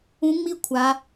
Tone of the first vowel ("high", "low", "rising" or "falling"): rising